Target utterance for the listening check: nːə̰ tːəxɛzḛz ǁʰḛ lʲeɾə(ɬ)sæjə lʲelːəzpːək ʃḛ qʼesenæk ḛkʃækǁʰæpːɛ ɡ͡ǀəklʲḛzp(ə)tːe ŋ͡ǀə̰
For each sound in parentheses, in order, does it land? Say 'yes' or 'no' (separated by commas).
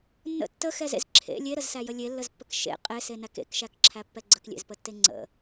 no, yes